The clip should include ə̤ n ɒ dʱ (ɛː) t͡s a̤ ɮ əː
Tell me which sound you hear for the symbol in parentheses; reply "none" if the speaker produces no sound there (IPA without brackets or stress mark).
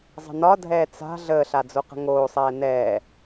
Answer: ɛː